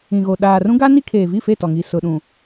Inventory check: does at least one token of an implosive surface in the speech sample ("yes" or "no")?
yes